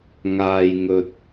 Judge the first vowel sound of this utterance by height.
low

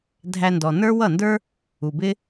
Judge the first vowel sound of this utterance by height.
low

